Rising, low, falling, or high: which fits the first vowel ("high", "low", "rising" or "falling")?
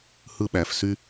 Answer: falling